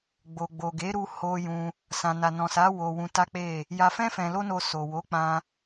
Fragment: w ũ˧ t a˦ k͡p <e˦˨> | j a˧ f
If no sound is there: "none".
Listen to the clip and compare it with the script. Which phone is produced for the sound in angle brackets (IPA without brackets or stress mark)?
e˦˨